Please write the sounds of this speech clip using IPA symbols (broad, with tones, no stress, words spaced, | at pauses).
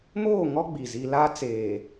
moː˦˨ŋɔ˦ ɡ͡bi˨ zi˨la˦t͡seː˨